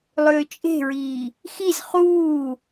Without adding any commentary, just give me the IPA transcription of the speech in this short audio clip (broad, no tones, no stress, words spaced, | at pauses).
lˠʏːt͡ʃʼe̤ɹiː | xiz χuː